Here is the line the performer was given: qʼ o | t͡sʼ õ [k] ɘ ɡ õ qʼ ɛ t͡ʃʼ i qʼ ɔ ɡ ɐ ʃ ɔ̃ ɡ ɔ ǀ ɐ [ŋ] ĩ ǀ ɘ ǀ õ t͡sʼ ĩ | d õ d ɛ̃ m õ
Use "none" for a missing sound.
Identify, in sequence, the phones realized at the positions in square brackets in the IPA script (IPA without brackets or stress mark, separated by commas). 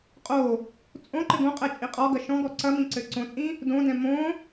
ǃ, m